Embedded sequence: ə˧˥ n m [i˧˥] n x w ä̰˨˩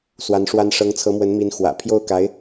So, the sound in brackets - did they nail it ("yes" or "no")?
yes